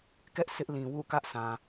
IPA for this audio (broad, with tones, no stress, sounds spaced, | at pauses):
k ɛ˦ ʔ sʰ ɪ˦ ʔ l ĩ˨ w ṵ˦˨ k ä˦ ʔ sʰ ã˨